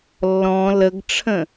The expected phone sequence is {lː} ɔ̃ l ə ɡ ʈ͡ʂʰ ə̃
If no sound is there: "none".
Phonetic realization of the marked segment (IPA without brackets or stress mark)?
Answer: lː